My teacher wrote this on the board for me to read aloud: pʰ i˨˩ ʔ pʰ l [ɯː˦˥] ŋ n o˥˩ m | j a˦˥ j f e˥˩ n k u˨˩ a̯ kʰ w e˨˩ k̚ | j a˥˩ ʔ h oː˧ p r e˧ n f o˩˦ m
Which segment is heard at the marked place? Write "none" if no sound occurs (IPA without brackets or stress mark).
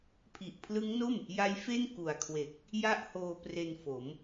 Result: ɯ˦˥